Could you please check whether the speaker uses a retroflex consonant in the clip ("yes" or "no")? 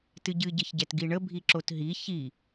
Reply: yes